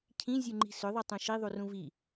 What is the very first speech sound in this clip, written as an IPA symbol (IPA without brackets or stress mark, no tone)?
cʰ